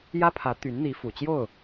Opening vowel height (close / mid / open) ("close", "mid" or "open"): open